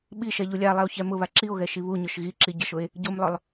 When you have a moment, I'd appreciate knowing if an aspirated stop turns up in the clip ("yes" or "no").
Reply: no